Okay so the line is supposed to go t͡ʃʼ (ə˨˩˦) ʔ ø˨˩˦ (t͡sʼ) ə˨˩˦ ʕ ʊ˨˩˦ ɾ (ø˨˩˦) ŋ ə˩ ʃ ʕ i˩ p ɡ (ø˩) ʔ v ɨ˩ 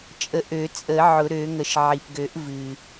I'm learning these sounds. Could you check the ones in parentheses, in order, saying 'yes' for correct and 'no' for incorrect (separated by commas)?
yes, yes, yes, no